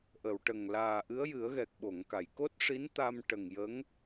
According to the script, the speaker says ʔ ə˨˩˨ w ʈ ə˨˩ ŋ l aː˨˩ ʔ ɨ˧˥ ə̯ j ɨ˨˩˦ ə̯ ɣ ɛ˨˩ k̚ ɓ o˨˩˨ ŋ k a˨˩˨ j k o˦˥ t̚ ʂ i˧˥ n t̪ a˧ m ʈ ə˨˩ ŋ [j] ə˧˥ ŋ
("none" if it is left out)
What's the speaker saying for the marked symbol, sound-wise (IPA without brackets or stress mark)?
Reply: j